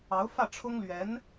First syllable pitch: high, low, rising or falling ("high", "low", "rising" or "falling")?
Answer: rising